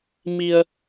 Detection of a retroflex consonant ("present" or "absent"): absent